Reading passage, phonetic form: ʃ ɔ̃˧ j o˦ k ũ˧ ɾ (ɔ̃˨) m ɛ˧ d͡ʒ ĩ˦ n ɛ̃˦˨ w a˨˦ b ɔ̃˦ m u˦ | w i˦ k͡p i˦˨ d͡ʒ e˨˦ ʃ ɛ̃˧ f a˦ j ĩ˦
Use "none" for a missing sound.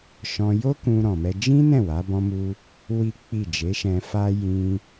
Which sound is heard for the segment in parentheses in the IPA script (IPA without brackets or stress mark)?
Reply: ɔ̃˨